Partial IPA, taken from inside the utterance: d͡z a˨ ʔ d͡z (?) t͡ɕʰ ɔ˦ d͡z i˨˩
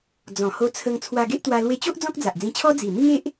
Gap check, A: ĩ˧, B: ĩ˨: A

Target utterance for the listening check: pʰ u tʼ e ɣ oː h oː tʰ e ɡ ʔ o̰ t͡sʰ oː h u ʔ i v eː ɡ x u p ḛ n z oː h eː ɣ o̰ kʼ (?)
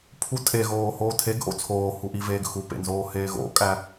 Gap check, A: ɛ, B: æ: B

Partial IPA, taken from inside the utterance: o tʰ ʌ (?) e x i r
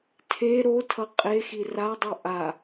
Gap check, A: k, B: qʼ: B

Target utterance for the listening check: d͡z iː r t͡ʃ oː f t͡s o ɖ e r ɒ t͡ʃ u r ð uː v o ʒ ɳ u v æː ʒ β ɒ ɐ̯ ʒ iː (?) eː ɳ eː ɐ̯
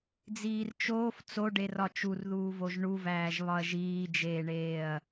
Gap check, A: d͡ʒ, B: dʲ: A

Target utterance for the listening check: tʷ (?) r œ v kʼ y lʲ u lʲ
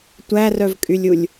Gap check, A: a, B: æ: B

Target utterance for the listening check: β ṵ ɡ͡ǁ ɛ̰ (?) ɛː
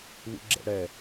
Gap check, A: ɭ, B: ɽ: B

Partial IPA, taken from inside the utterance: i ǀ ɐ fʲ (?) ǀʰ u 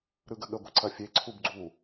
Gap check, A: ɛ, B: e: B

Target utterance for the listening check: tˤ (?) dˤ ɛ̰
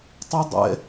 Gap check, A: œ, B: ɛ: B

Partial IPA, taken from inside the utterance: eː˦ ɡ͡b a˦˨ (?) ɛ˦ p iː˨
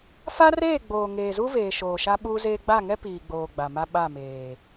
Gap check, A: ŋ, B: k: A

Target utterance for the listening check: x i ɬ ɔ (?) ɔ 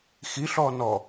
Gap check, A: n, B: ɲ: A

